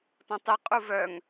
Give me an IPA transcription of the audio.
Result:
t ɔ̃ tˤ i qʼ u v œ ŋ

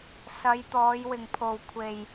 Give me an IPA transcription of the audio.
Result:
s ɐ˨˧ j t̪ ɔː˨˧ j w ɪ˨ ŋ pʰ o˨ w kʷʰ e˨ j

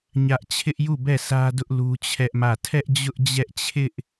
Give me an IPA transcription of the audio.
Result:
ɲ ä˦ ʔ t͡ɕʰ ɪ˦ ʔ j u˦˨ b ɛ˦˨ s ä˦ d ʊ˦ ʔ l u˦ t͡ɕʰ ɛ˦ ʔ m ä˦˨ tʰ ɛ˦ ʔ d͡ʑ ʊ˦ ʔ d͡ʑ ɛ˦ ʔ t͡ɕʰ ɪ˦ ʔ

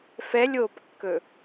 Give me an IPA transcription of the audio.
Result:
f ɛ lʲ oː p kː ɵ

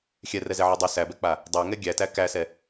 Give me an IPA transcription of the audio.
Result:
xʲ ɛ r ɛ z ɛ ʕ o dˤ o s æ b ɛ k͡p a | dˤ æ ŋ ɛ ɡʲ æ t æ k æ s ɛ

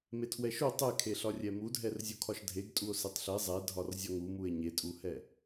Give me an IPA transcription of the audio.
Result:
m e tʰ w ɛ ʃ u tˤ ɛ kʰ e ɬ ɒ rʲ ɛ m u dʱ ɛ r zʲ u kʰ ɒ ʃ dʱ e ɡ tʼ u o̯ s e tˤ ɬ e zˤ ɛ dʱ ɒ r zʲ ɒ ŋ u m u e̯ ɲ e tʼ u h ɛ

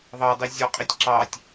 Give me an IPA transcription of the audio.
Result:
ðˤ ɑ dˤ i zʲ ɔ qʼ i tʲ ǁ ɑ tʲ

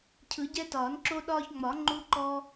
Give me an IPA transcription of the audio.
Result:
cʰ ɯ˨˩˦ ɟ ɛ˦ t ɒː˨˩˦ n ǁ o˦ ɗ ɒː˦ ç ŋ͡m ɒ˨˩˦ ŋ͡ǃ u˦ ǃ ɔ˦

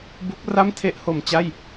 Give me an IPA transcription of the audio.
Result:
b u˦˥ k̚ r a˥˩ m tʰ e˥˩ ʔ h o˧ m t͡ɕ a˥˩ j

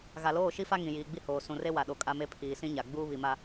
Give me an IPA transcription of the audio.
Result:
ɣ a˨ l oː˦˨ ʃ i˦ f a˦ ŋ ĩ˨ j iː˨ ɡ͡b i˦ h oː˨ s ũ˨ r e˦ w a˨ ɗ o˨ kʼ a˦ m e˦ pʰ iː˨ s ĩ˦ ɲ a˨ ɡ͡b uː˦ β i˨ m a˦

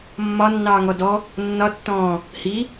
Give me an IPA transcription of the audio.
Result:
mː ɒ nː ɑː ŋ ɔ d ɔ | nː ɒ tː ɔ̃ː | h i

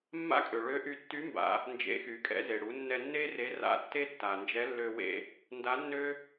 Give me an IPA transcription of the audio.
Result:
mː a̰˥ kʼ ø˩ ɭ ø˧˥ ʔ y˧ tː y˧˥ m b a̰˩˧ | n d͡ʒ ḛ˧˥ x y˩˧ kʼ ɛ̰˧˥ z e˩ ɽ u˩˧ nː ɛ˧ nː e˥ r e˧˥ r a̰˧˥ tː e˥ tː a˩ n d͡ʒ ɛ˧˥ lː ø˧ w ḛ˧ | n d a˧˥ nː ø˥

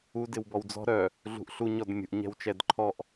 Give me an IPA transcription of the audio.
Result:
u d ɪ w b ɔ w d͡z ɔ̤ ɾ œ | ɮ ṳ ʔ ɬ u ɲ ɔ d mʲ ṳ ʔ ɲ ɛ̤ w t͡ʃ ɛ d ǃʰ ɔ ʔ

